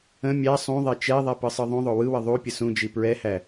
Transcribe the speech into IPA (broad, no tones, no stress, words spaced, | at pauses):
ə̃ mʲæ sˤũðˤɛ t͡ʃɛðˤɛ pɯsˤɯðˤũðˤo wɯwə ðˤupʲə sũd͡ʒi pɹɛhæ